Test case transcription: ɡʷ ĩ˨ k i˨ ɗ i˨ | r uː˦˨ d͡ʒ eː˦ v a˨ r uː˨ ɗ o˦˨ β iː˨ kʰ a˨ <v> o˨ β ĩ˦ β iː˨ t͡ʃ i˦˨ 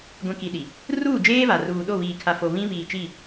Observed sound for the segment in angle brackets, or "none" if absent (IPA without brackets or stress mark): f